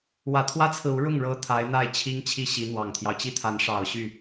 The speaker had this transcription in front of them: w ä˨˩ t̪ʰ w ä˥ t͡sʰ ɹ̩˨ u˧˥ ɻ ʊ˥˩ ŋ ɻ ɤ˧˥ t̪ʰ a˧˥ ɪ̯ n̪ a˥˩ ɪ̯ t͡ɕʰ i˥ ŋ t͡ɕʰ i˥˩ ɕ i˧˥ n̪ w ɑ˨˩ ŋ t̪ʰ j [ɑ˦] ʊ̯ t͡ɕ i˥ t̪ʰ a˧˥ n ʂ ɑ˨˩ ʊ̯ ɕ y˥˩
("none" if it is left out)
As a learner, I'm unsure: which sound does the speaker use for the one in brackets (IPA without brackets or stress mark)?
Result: ɑ˦